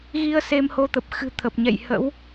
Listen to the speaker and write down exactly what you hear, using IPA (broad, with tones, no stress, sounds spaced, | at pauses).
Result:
ɣ i˧ ə̯ s e˧ m h o˧ t̪ ə˨˩ p̚ x ɨ̤˨˩ t̪ʰ ə˨˩ p̚ ɲ ɛ̰˧˨ j h ə̰˧˥ w